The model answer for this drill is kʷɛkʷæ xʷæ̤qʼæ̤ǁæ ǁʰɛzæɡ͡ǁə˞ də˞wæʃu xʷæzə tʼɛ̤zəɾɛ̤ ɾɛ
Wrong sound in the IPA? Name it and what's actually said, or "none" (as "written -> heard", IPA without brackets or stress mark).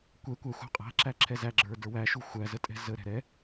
none